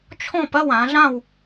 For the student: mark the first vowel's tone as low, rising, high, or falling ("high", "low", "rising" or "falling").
falling